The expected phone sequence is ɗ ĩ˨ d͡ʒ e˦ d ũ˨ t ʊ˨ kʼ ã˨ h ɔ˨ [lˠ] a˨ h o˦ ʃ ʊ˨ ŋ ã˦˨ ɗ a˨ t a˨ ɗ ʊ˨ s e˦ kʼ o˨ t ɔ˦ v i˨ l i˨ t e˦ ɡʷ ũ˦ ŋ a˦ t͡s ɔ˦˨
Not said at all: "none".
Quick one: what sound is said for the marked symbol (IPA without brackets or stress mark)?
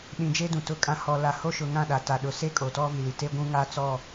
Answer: l